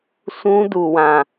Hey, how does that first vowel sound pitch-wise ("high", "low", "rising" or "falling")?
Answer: high